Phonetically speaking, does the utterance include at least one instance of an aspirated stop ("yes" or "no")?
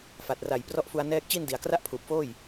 yes